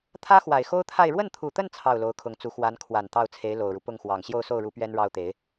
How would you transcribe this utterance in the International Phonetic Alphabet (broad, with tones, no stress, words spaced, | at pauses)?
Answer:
t̪ʰä˥ xwa˨˩ɪ̯xo˥ʊ̯t̪ʰa˥˧ɪ̯ ɻwə˥˩nt̪ʰu˨˩t̪ə˥˧n t͡sʰɑ˥˩ʊ̯lo˧˥ʊ̯kʰʊ˧˥ŋt͡su˧˥ xwa˧˥nkʰwa˨˩n t̪ɑ˥˩ʊ̯t͡sʰe˧˥ɪ̯ lo˨˩ʊ̯ɻu˦ pʊ˥˩ŋxwɑ˨˩ŋ ɕjo˥˧ʊ̯so˥˩ʊ̯ɻu˧˥ pɥɛ˥nɻɑ˥ʊ̯t̪e˧˥ɪ̯